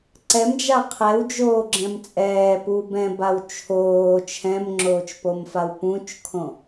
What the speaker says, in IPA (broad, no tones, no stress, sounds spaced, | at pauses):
ǀ ɛ m d͡ʒ a qʰ ɛ w d͡ʒ oː ɡ͡ǁ ɛ̃ m t͡sʼ ɛː p u b ɛ̃ b a w t͡ʃʰ oː t͡ʃʰ ɛ̃ m ŋ͡ǁ oː t͡ʃ p o m f a w p ũ t͡ʃ kʰ õ